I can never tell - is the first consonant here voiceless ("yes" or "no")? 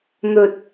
no